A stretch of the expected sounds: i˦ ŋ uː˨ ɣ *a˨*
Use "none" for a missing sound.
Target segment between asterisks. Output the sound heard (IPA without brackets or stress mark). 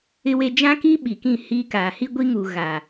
a˨